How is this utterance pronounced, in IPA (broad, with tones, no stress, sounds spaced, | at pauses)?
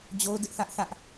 d͡ʑ o˦ ʊ̯ d ɪ˦ ʔ θ ä˦ ʔ θ ä˦ ʔ